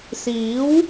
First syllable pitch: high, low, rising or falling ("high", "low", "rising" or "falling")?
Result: rising